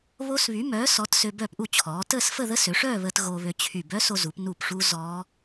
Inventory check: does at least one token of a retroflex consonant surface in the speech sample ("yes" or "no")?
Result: yes